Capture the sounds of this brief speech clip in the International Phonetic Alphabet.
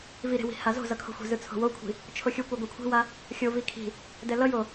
v i ɾ e̤ w i̤ h a z o̤ z ʌ kʰ o̤ xʷ e̤ z ɯ t͡sʰ o̤ w o kʷʰ i̤ | t͡ʃʰ o xʲ u kʷ e ɡʷ ʌ kʷʰ e̤ w a | xʲ o v i kʰ i̤ | d ɛ l ʌ j o

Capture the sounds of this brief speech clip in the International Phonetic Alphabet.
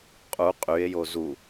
qʼ u qʼ y e̯ j o z u

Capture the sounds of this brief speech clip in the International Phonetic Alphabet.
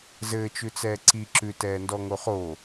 z ɘː t͡ʃ ʉ t͡s ɛː ǀ i ǁ ʉ t ɛː n d ɔ ŋ o χ o

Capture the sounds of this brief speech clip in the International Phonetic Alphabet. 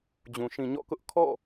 d͡ʑ ũ˨ ʃ ĩ˨ ɲ ɔ̰˦˨ k ʊ˦ ʔ kʰ ɔ̰˦˨

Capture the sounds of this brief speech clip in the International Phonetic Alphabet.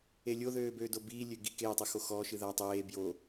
e lʲ o ð øː b øː d o b iː lʲ ø ɡ i k eː tˤ ɨ x o x ɔː ʃ ɨ ð a tˤ eː b j o

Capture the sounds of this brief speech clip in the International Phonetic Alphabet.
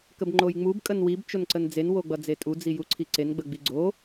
k ə b ŋ͡ǃ o j ŋ͡m u b kʼ ə n w i b t͡ʃ o n ǀ ə n d͡z e n w o ɡ͡b ʌ d͡z e tʼ u d͡z i j u ǀʰ i ǀ e n ɡ͡b ə ɡ͡b i ɡ͡ǀ o

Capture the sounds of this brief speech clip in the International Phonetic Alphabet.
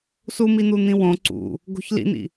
s u m i n̪ u n̪ ĩ w õ ǀ ṵ | ɡ o̤ ç l ḭ n̪ ḭ

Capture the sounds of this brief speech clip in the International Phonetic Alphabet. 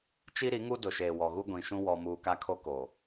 t͡ʃ i˦ ɾ i˨˦ ŋ u˦ d ʊ˨ ʃ eː˨ w ɔ˨ ɣ u˦ ɡʷ ĩ˨ ʃ ũ˦ w ɔ˦ m uː˦ k a˦ kʰ o˦ k o˨

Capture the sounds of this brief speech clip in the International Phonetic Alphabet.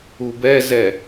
u b ɛ z ɛ

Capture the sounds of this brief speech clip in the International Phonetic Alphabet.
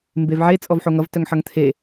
m b e v ʕ e t͡sʼ ɔ v ħ o ŋ ʌ v t œ ŋ ħ ʌ ŋ t̪ʰ e

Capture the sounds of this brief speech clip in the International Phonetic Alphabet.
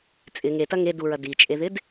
t͡sʼ ɪ ŋ e t ɐ ŋ e d u ɹ ɐ d i t͡ʃʼ e ð ɪ d

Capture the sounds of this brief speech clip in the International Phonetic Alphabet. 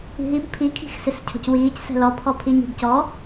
i̤ ɦ i b pʰ i kʰ i̤ x s ɪ s cʰ ɔ̤ c w iː c s ɛ̤ l ɔ pʰ ɔ pʰ i ɲ i̤ b c ɔ

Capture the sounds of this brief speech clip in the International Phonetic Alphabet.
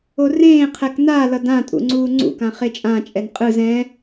o r ẽː qʰ ɛ k n a l ʌ d ã tʼ ṵ ŋ͡ǀ uː ŋ͡ǀ ṵ k ã χ e t͡ʃʼ ã t͡ʃʼ ɛ n qʼ ɯ z ɛ̃

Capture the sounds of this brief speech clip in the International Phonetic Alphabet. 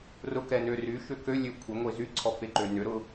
r ʊ k ɛ n ø r y ʃ ʏ k ø lʲ ø kʷʰ e ŋʷ e z y ǀʰ ɔ f e ǃ ø n ʏ ɾ ʊ

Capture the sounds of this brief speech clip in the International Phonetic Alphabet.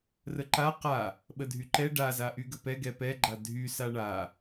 r ə ǃ a q a | ɓ ə dʱ y ǃ ɛ ɖ a z a ʔ y ɡ ə p ɛ ɡ ɛ p ɛ ɡ͡ǃ a dʱ y s a ɳ a

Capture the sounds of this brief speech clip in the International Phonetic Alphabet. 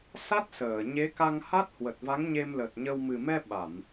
s a˦˥ t̚ s əː˧˩ ɲ e˨˦ k a˧ ŋ h a˦˥ t̚ h w ə˨˩ t̚ v a˨˦ ŋ ɲ e˧ m l ə˨˩ t̚ ɲ ə˧ w m ɨ˨˩ m ɛ˧ ɓ a˧˩˨ m

